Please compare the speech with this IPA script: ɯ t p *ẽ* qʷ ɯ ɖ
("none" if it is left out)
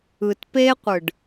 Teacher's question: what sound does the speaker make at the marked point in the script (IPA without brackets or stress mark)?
e